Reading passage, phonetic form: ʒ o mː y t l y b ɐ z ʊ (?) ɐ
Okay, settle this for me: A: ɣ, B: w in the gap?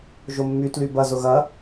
A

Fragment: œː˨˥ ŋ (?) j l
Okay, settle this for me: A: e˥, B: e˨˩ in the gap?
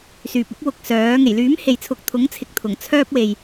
B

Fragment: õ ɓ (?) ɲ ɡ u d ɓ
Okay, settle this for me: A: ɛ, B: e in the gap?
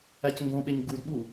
B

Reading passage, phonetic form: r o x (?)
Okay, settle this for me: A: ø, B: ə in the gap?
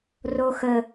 B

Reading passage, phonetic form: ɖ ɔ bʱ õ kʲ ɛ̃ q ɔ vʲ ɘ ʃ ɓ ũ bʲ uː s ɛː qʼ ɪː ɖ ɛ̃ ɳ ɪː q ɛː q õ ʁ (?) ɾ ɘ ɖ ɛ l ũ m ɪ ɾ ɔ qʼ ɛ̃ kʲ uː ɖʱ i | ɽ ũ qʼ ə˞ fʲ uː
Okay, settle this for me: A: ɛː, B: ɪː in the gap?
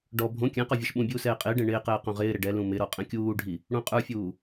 B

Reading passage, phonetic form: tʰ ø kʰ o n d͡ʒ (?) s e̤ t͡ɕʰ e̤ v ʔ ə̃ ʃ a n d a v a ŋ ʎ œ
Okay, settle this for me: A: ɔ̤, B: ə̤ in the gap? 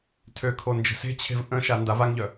B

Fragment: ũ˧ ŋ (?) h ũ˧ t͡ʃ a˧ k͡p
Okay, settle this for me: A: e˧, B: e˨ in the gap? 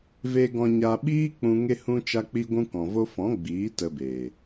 A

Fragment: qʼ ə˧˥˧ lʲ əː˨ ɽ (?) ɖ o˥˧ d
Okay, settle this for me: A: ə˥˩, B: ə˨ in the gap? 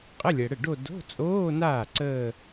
A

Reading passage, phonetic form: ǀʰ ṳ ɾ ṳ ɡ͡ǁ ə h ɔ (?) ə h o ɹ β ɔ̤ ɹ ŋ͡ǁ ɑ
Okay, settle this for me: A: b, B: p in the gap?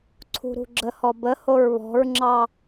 A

